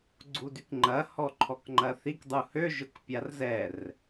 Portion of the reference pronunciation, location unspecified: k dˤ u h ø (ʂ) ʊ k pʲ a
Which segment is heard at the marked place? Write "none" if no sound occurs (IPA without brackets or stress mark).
ʒ